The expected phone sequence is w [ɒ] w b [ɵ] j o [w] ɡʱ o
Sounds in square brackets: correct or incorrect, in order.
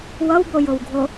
incorrect: ʌ, incorrect: o, correct

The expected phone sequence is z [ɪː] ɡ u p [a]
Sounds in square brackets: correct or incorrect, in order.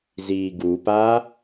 incorrect: iː, correct

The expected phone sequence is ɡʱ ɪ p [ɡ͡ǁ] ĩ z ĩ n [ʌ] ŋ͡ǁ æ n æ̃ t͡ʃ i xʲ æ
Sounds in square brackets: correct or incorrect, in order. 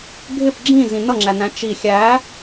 correct, correct

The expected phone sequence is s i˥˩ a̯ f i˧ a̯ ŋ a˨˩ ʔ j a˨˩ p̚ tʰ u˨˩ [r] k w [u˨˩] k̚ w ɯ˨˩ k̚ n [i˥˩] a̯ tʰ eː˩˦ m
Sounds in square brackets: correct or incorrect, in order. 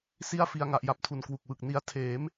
incorrect: n, correct, incorrect: i˧

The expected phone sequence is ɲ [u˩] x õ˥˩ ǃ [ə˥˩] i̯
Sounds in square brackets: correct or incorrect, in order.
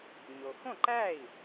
incorrect: o˩, incorrect: æ˥˩

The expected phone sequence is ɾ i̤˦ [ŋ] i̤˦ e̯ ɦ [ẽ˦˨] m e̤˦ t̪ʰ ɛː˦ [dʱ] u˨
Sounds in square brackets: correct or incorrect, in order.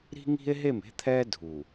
correct, incorrect: e˦˨, correct

